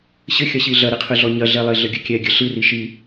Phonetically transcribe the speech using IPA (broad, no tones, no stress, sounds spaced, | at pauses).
ɕ ɘ xʲ ɐ ɕ i ɮ ɐ ɾ i qʰ ɨ ɮ ɔ ɲ ɐ ɮ ɛ lˠ e ɮ ɘ ɡʲ ɘ kʲ ɛ ɡʲ ɘ ɬ ɨ r i ʃ i